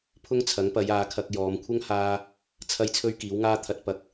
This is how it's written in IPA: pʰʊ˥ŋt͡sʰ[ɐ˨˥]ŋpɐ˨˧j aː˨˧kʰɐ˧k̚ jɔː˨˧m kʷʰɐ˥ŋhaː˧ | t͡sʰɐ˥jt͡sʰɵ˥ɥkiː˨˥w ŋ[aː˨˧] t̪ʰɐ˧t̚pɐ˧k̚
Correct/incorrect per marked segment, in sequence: correct, incorrect: aː˥

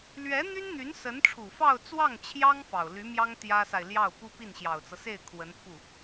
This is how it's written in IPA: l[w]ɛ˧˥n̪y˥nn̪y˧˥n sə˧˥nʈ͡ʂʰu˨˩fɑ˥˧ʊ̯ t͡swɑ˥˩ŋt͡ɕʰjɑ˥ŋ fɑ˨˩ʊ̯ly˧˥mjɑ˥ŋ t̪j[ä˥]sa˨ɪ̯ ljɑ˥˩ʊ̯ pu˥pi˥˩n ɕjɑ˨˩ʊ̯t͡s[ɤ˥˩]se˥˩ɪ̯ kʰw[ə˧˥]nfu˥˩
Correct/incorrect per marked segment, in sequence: incorrect: ɥ, correct, incorrect: ɤ˦, correct

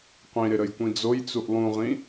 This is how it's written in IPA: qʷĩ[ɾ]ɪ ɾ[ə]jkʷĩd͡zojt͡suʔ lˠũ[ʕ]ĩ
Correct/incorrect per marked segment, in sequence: correct, correct, incorrect: ʁ

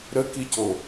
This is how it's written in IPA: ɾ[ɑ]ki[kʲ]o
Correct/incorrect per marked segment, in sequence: incorrect: ə, incorrect: c

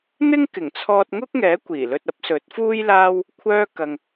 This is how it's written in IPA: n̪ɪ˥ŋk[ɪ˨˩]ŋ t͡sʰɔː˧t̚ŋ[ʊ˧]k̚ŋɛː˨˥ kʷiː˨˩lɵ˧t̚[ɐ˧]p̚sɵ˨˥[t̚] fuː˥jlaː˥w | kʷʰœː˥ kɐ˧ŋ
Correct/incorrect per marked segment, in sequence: correct, incorrect: ʊ˥, incorrect: ɐ˨˥, correct

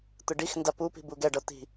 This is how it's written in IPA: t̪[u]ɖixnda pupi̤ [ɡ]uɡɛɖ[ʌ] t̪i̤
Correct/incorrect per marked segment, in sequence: incorrect: ɯ, incorrect: b, correct

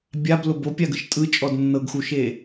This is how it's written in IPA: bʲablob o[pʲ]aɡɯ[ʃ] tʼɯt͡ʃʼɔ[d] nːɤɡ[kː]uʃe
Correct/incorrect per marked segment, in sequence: correct, correct, correct, incorrect: x

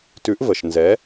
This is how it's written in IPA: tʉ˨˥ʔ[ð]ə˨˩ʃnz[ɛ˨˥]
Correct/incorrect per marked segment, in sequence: incorrect: v, correct

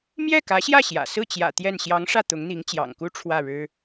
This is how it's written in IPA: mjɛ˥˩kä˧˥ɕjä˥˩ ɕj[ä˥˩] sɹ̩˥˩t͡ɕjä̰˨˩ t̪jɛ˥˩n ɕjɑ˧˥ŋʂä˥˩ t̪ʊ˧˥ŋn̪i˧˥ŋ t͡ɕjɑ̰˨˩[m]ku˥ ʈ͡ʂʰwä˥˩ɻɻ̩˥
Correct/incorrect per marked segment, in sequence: incorrect: ä̰˨˩, incorrect: ŋ

